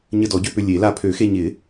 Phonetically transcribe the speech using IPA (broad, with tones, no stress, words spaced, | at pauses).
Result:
ɲə˧dɔ˨˩˦ɟø˧pʏ˧ lʲe˨˩˦la˧ pʰø˨˩˦xe˧ɲɪ˨˩˦